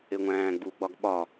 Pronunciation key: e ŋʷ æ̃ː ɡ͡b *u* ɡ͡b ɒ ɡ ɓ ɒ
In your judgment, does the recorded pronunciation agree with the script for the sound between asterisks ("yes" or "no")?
yes